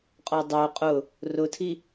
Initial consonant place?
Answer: uvular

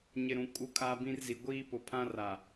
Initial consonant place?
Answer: palatal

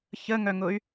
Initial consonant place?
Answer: palatal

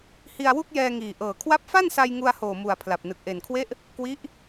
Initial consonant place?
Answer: glottal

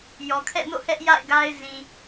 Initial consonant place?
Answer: palatal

